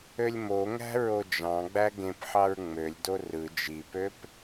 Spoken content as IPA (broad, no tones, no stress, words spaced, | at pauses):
ølʲmoŋæ̤ ɹod͡ʒɑ̃ɡ͡bæ ɡẽpħɑɹ ŋ͡mølʲdo rɯ d͡ʒipøp